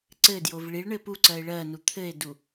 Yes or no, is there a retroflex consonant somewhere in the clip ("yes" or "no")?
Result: yes